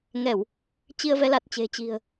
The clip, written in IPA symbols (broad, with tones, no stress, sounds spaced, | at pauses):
ŋ ɛ˧˩˨ w | t͡ɕ i˧ ə̯ v ɛ˨˦ l a˨˩ t̚ t͡ɕ e̤˨˩ t͡ɕ i̤˨˩ ə̯